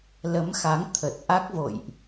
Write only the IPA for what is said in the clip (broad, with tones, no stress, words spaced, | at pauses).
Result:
lə˨˦mxa˨˦ŋ t̪ʰə˨˩t̚ ʔa˦˥k̚vo̰˧˨jʔ